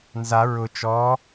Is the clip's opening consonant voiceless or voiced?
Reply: voiced